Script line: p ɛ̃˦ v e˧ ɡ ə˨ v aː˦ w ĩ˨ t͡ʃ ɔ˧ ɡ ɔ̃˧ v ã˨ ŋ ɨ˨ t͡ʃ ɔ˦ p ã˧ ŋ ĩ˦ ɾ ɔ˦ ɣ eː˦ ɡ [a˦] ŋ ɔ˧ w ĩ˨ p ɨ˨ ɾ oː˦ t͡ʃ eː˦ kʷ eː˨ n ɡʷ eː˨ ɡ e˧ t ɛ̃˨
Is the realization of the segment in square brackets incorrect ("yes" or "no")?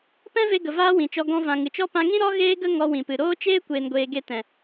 yes